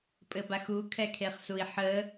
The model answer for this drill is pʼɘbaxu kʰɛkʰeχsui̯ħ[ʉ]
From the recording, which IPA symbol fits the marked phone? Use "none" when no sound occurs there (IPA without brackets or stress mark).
ə